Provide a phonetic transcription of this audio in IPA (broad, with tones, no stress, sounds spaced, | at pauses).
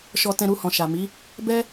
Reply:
ʃ ɔ˧ t ɛ̃˧ ɾ u˧ h ɔ̃˨ ʃ a˨ m i˨˦ | b ɛ˦